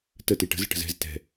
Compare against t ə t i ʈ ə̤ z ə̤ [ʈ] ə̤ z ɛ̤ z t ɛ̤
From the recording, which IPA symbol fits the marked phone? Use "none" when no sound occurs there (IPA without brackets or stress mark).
ʈ